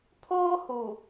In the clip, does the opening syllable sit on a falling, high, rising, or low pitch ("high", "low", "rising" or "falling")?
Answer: high